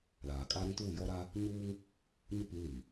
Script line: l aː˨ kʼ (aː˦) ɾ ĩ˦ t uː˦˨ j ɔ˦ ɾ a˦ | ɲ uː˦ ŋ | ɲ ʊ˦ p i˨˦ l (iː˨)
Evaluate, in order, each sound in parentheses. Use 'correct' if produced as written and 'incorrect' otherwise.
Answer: correct, incorrect

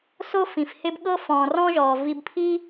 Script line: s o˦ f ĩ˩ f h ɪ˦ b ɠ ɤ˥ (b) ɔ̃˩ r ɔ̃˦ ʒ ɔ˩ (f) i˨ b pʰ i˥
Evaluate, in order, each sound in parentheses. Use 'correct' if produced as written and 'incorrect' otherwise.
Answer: incorrect, incorrect

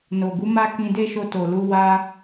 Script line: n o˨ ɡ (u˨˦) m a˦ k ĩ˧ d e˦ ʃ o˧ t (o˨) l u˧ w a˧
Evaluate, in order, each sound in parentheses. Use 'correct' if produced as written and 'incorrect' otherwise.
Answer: correct, correct

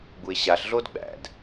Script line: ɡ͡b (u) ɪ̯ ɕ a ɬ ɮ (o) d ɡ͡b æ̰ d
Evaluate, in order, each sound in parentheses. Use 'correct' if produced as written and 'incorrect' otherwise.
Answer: correct, correct

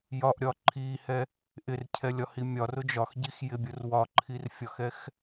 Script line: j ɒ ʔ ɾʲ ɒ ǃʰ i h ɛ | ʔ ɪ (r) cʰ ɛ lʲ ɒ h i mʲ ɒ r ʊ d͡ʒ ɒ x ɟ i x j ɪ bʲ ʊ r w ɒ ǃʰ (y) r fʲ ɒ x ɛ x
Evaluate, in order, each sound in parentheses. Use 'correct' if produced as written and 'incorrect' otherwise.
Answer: correct, incorrect

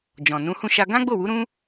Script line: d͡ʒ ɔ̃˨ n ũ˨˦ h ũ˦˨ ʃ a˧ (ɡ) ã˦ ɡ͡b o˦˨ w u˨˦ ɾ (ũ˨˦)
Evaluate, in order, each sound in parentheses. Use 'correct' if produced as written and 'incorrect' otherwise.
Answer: correct, incorrect

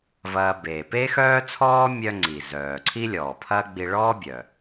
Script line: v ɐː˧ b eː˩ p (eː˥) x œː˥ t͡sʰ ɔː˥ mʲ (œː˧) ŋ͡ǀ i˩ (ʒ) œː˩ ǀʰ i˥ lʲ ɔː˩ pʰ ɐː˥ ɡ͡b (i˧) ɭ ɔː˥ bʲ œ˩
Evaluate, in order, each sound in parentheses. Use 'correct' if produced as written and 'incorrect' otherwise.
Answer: correct, incorrect, incorrect, correct

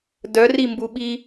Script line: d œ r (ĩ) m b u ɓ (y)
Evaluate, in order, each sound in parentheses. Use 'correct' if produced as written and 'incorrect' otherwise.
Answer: incorrect, incorrect

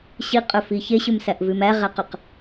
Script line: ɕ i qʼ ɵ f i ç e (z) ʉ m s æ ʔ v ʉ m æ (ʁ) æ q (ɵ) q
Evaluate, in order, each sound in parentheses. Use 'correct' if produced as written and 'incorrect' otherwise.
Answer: incorrect, correct, correct

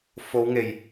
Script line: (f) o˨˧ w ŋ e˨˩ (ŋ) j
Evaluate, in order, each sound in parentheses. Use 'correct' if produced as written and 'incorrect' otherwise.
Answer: correct, incorrect

